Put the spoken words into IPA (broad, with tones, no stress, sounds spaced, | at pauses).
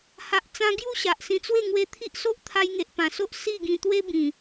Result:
h a˨ ʔ t͡s ã˧ ɡ j u˥˧ ɕ a˨ ʔ s ĩ˧ t͡s w e˥˧ ŋ w e˧ t̪ʰ i˦ ʔ s o˦ ʔ t̪ʰ a˧ j ŋ e˨ ʔ p ã˨˩ s o˦ ʔ s i˥˧ ɡ ĩ˧ t̪ w e˦ b ĩ˨˩